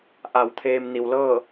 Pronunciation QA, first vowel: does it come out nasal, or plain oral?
oral